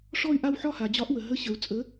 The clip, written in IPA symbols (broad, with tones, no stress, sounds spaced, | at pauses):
ʂ ɔ˥˧ y̯ ʔ a˥˧ w ħ ɒ˥˧ h a˨ d͡ʑ ɒ˧˥ ʔ w ə˨ ɦ ə˧˥ ɕ ə˨ u̯ t͡sʼ ə˧˥